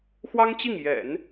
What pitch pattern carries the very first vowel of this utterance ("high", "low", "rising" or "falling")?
high